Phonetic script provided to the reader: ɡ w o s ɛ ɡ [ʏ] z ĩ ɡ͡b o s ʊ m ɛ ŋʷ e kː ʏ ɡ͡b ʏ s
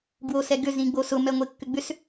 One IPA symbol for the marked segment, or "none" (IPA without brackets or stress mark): ʏ